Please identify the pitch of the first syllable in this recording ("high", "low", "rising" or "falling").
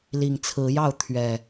low